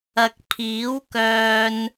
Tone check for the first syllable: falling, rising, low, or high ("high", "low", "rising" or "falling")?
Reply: low